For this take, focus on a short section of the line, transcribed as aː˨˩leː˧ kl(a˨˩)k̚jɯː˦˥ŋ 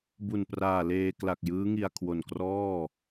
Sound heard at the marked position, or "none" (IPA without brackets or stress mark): a˨˩